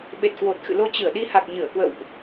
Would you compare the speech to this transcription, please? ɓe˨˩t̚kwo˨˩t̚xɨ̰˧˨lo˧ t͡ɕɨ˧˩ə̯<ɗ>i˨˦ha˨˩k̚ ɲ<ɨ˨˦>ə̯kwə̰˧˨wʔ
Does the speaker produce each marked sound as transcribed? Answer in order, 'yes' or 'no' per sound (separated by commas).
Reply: yes, no